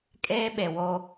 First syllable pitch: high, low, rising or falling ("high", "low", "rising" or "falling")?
high